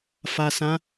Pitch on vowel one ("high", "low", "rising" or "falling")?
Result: low